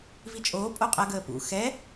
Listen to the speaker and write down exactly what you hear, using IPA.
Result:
v i t͡ʃʼ oː pʼ o qʼ ɐ ɡ əː p ṵ x ɛ

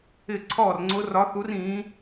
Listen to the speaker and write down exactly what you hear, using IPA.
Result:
ɪ˧˩ ǀʰ ɔː˧˩ r ŋ͡ǀ ʊ˨˦ r ɒ˨˦ θ u˨˦ r ĩː˨˦

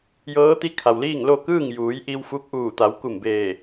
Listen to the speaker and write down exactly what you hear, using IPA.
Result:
j ɤː˧˥ t̪ i˧˥ kʰ a˩ w l iː˥˨ ŋ l o˥˨ k ɯː˥˨ ŋ j uː˩˧ j ʔ i˧ w f u˧ k̚ ʔ uː˧˩ t̪ a˩˧ w k u˧˩ m b eː˧˩

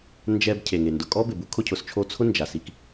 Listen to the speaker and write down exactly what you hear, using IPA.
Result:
n d͡ʒ ɛ˦ b cʰ e˩ ŋ e˩ n d ʊ˩ kʼ ɔ˥ b ɪ˩ b u˥ kʰ ʊ˦ cʰ ʊ˩ s t͡ʃʰ o˦ t͡sʰ ʊ˥ n d͡ʒ a˩ s i˨ k

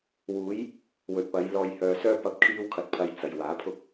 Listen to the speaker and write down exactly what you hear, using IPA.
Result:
w uː˨˧ j | w ɵ˨ t̚ p ɐ˨˧ j l ɔː˨ j h œː˧ s œː˥ p ɐ˨˥ p̚ kʰ iː˧ w kʰ ɐ˨ t̚ pʰ ɐ˨ j t͡s ɐ˨ j w aː˨˥ pʰ ʊ˥ k̚

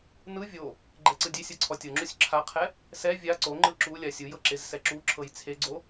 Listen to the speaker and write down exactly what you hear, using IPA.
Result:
n ɯ vʲ o | ɡ͡ǃ ɛ ǀ ɯ dʲ e sʲ ɤ ǀʰ ɔ tʲ ɤ ŋ͡ǁ u sʲ ǁʰ a qʰ ɛ | s ɛ vʲ a ǀ o ŋ͡ǃ ɯ ǁ u lʲ a sʲ ɯ j ɤ ǁ e z s ɛ ǁ u ǁʰ ɤ j t͡sʰ e ɡ͡ǀ o

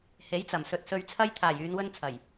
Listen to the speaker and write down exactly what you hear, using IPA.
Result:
h e˨˥ j t͡s ɐ˨˩ m s ɵ˨ t̚ s ɵ˧ ɥ t͡sʰ ɐ˥ j t̪ʰ aː˨˩ j yː˨˧ n w ɵ˥ n t͡sʰ ɐ˨˩ j

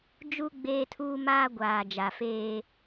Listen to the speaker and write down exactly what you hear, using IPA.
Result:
d͡ʒ u˦ ɡ͡b eː˦ tʰ uː˦ m aː˦ ɡʷ aː˨ d͡ʒ a˨ f eː˦

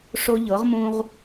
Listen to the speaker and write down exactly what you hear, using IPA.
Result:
ʂ o˦ ʎ ɤ˩˥ ʁ m ũ˦ ʁ

